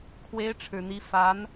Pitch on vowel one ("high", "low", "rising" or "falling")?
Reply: rising